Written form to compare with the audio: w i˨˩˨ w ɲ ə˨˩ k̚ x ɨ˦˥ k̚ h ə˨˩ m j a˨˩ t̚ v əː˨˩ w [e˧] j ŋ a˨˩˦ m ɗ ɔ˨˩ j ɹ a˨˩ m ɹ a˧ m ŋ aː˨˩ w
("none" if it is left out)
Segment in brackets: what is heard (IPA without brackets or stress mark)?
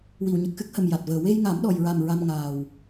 e˧